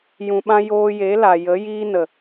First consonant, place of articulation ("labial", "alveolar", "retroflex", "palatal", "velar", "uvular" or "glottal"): palatal